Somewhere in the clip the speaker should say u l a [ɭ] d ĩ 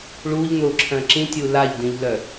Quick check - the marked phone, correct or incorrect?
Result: incorrect